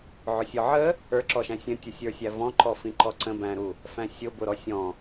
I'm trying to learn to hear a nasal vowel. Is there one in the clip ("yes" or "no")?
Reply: yes